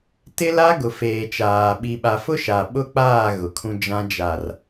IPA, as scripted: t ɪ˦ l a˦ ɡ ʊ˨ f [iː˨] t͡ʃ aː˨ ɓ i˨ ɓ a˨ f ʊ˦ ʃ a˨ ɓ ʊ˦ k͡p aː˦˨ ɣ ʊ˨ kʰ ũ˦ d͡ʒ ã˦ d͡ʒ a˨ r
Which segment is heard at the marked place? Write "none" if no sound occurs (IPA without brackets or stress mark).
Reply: eː˨